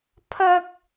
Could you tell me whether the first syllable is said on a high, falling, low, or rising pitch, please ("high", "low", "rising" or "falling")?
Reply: high